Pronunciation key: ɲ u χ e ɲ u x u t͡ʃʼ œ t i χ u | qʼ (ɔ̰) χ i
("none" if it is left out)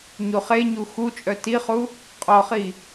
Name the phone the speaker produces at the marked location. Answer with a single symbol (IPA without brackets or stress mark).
ɔ